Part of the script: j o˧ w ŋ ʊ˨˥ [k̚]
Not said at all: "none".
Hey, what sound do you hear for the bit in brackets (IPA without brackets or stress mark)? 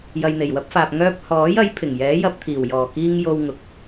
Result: k̚